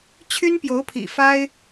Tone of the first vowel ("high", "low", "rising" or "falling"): high